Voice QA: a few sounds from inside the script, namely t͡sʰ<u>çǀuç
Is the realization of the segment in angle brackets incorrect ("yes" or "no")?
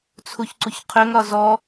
no